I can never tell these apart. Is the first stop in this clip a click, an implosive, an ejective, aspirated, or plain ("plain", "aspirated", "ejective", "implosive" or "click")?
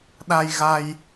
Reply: implosive